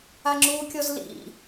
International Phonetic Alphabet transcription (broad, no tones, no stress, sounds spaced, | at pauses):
a ŋ͡ǁ u kʲ ɔ z l ḭ